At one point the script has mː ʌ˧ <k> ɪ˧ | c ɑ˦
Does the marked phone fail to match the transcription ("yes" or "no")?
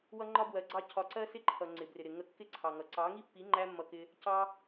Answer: no